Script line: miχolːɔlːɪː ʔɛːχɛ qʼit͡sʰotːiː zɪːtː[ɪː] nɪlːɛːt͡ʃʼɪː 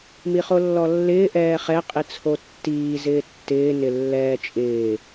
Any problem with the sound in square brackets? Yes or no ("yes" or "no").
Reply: no